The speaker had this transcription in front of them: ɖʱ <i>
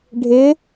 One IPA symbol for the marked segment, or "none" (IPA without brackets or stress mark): ɪ